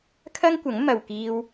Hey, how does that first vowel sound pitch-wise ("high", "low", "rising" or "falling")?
high